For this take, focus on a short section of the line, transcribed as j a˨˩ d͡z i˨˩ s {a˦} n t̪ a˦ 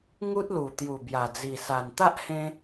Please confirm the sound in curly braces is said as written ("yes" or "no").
no